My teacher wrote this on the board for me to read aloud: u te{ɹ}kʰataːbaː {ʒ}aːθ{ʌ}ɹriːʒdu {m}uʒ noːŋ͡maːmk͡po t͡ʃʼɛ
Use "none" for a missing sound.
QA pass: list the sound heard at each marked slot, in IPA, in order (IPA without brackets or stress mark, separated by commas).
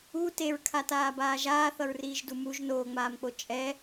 ɹ, ʒ, ʌ, m